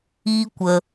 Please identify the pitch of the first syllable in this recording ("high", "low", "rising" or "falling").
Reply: high